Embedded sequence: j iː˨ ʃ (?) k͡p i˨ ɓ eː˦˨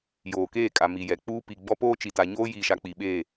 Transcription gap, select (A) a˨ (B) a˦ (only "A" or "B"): A